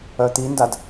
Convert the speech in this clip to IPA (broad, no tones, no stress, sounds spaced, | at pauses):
œ t̪ i n d a d